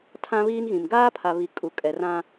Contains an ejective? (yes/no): yes